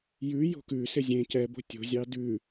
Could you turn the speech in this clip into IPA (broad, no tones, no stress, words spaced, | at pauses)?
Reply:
jʉ jo̤kʉ sɪzʲẽ cɛbo̤ tʲo̤zʲɑ dʉ